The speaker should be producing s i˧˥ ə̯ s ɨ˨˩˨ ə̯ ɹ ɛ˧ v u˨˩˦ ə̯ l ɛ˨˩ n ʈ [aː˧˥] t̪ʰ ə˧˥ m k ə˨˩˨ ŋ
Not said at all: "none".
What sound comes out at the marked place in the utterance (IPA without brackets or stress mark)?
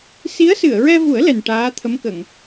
aː˧˥